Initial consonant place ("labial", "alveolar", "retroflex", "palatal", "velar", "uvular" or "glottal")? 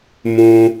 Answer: labial